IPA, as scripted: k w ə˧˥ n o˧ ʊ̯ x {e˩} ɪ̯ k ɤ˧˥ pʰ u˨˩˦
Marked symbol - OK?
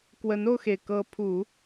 yes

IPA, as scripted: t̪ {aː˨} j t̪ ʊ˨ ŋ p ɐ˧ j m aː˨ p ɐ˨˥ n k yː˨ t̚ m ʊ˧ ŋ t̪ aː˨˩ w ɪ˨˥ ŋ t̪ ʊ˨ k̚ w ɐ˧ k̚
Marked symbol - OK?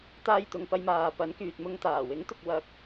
no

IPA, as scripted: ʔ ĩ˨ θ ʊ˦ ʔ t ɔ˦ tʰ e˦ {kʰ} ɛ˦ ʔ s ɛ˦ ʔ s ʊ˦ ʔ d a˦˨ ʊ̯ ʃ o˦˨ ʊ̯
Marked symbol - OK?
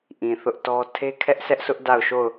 yes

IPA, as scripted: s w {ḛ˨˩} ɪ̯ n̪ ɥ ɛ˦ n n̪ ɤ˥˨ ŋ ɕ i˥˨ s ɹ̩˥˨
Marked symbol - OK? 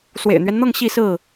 yes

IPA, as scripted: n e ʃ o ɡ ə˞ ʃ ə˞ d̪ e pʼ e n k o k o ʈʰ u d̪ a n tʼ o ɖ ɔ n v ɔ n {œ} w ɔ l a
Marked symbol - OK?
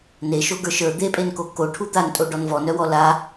yes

